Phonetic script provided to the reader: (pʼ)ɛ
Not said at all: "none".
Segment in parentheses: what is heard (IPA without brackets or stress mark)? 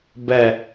b